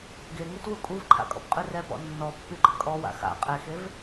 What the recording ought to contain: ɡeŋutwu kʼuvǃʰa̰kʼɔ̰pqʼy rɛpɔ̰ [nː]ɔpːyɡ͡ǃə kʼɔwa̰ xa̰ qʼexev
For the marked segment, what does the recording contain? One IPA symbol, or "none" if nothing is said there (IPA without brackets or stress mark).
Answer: nː